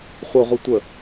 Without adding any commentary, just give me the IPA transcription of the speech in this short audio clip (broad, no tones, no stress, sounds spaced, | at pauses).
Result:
χʷ ə ʁʷ ɨ tʷ ə